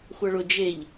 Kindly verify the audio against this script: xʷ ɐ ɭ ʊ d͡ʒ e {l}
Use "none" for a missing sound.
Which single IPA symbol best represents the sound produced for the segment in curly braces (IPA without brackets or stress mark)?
ʎ